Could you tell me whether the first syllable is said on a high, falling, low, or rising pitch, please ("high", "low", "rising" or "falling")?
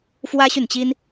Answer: high